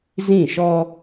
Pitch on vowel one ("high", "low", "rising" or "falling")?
falling